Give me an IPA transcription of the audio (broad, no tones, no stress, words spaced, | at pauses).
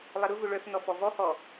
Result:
lˠɐɾʊvʊ ɭœfnɔ fɔvɔhɔ